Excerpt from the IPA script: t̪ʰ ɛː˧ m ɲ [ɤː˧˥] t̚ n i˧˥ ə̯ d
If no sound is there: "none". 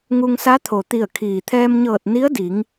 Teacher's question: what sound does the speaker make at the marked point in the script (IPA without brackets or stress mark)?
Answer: ɤː˧˩